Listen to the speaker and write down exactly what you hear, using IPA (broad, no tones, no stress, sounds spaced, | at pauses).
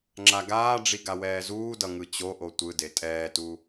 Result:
ŋ͡ǁ a ɡ aː ɖ͡ʐ i ɡ a w ɛː z uː d ʌ ŋ ɯ t͡ɕ o ʔ o tʷ ɯ d e tʼ ɛː t u